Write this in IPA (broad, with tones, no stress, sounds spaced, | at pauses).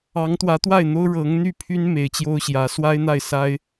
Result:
ɑ˧˥ ŋ t̪ w ä˧˥ t̪ w a˥˩ ɪ̯ n̪ o˥ ʊ̯ ɻ ɤ˧˥ ŋ n̪ y˥˩ pʰ y˥ n m e˧˥ ɪ̯ t͡ɕ j o˥ ʊ̯ ɕ j ä˧˥ s w a˥ ɪ̯ n̪ a˥˩ ɪ̯ s a˥ ɪ̯